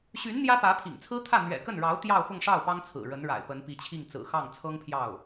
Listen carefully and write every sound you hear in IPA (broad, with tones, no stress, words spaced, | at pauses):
ɕy˧˥n n̪jä˥pä˧˥pʰḭ˨˩ŋt͡sʰɹ̩˥ t̪ʰä˥˩ n̪ɥɛ̰˨˩kə˥˩nɻɑ˧˥ʊ̯ t̪jɑ˥˧ʊ̯xʊ˥˧ŋʂɑ˥˩ʊ̯ pɑ˥ŋt͡sʰɹ̩˨˩ɻə˧˥nɻa̰˨˩ɪ̯ pə˧˥npi˧˥t͡ɕʰi˥˩ŋ t͡sɹ̩˨˩xɑ˥˩ŋ t͡sʰɤ˥ŋpʰjɑ˥˩ʊ̯